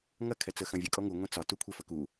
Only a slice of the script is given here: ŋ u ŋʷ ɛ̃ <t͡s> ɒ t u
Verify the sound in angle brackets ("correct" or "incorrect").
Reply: correct